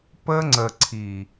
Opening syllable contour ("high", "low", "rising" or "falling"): high